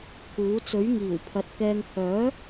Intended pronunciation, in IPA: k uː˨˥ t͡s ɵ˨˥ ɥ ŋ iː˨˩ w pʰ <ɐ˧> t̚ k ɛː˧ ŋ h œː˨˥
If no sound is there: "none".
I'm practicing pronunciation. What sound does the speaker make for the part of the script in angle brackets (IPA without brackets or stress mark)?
ɐ˨